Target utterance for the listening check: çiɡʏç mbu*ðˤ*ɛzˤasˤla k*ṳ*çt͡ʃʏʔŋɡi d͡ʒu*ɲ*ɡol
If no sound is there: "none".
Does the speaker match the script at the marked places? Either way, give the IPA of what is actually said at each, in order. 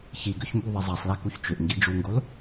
ðˤ, u, ŋ

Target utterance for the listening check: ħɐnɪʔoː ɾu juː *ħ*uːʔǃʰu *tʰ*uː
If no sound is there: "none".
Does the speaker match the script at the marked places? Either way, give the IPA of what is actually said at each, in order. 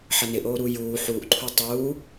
ħ, tˤ

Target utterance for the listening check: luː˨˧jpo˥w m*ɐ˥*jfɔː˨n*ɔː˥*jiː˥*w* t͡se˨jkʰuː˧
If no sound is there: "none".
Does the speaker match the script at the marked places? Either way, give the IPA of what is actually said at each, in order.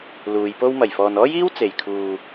ɐ˨˩, ɔː˥, w

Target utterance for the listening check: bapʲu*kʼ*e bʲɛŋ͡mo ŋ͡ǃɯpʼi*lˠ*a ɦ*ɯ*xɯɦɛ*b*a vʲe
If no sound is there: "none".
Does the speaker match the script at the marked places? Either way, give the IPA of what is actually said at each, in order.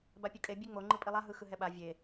kʼ, lˠ, ɯ, ɓ

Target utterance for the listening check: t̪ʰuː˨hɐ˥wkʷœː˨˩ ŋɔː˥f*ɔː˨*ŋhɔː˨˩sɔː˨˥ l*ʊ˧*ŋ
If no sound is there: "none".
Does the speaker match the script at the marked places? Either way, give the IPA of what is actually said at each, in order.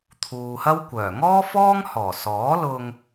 ɔː˥, ʊ˧

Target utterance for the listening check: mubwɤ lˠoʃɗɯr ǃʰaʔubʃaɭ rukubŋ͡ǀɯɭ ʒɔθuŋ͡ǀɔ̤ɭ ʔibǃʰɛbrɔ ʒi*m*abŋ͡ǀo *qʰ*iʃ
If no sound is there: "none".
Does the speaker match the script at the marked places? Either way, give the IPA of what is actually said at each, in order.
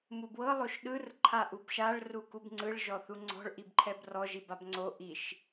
b, ʔ

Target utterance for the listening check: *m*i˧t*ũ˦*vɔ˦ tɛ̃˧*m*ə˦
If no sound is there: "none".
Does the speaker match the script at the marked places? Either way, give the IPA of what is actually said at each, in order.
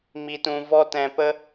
m, ũ˧, p

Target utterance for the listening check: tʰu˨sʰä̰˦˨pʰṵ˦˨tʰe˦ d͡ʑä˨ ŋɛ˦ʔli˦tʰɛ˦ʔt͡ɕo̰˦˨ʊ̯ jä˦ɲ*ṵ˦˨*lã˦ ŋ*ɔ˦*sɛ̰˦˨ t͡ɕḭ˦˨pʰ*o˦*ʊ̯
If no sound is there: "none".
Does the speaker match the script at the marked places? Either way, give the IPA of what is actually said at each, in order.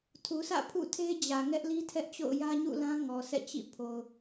ṵ˦˨, ɔ˨, o˨

